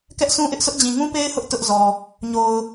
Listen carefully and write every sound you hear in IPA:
k ɛ˦ ʔ sʰ ũ˦ ʔ ɪ˦ ʔ sʰ ʊ˦ ʔ d͡ʑ ĩ˨ ŋ ũ˦ p e˦ ɪ̯ h ʊ˦ ʔ t ʊ˦ ʔ z ɔ˨ | ɲ o˨ ʊ̯

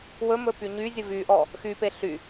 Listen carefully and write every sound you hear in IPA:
w ɵ m ɵ p y ɲ y zʲ ə v y ʔ ɔ | x y p e ɬ y

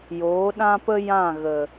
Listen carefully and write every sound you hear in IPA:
j oː˨˦ ɗ ã˦ p ə˦ j ã˦˨ ɣ ə˨

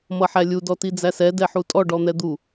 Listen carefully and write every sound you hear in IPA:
m ʌ ħ æ lʲ u d ɔ t i d͡z æ s ɛ d ɛ ħ u tʼ ɔ ɖ ɔ n̪ ɛ d̪ u

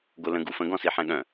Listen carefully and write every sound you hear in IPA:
ɡ o l ə̃ ɡ u f ə̃ ɡ ɔ̃ s i ħ ɛ̃ ɠ œ̃

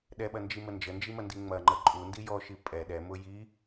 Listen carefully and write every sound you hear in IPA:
ɗ ɛ ɓ ɐ n d͡ʒ i m ə n d͡ʒ ə n d͡ʒ i m ɐ n d i ŋ͡m ɐ ŋ͡ǃ ə ǃʼ u n d i j ɔ ʃ i pʼ ɛ ɗ ɛ m ʊ j i

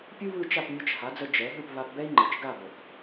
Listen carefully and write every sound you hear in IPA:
pʲ u˥ β ɯ˥˩ t͡ʃ a˥˩ p mʲ ə˧ t͡ʃ h a˩˥ d͡z ə˧ d͡ʒ ɛ˩˥ ɦ ɯ˥˩ p β a˧ p b ɛ˥ i̯ ŋ͡ǃ ɯ˩ t͡ʃ ɡ a˥˩ b ə˩ θ

